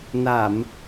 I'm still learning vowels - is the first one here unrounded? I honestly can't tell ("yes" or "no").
yes